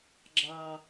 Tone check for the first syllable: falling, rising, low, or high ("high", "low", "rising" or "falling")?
low